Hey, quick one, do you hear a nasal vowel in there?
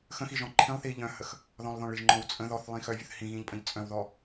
yes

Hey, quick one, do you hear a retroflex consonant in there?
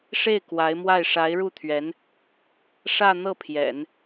yes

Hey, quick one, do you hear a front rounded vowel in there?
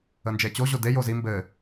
no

